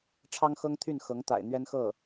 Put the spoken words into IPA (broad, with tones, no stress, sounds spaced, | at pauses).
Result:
ʈ͡ʂʰ ɑ˥ ŋ x ɤ˥ ŋ t̪ʰ y˥˩ n x ɤ˧˥ ŋ t̪ a̰˨˩ ɪ̯ n̪ ɥ ɛ˥ n x ɤ˥˩